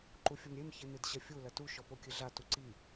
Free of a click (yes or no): no